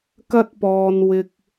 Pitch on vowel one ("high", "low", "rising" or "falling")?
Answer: high